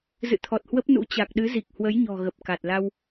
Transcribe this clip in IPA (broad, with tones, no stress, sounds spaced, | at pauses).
z ɨ̰˧˨ t̪ʰ ɔ˨˩ t̚ h w ə˦˥ p̚ n ṵ˧˥ t͡ɕ a˨˩ k̚ ɗ ɨ˨˦ z i˨˩ k̚ h w ə˨˦ j ɲ ɔ̤˨˩ ɣ ə˨˩ p̚ k a˨˩ t̚ l a˧ w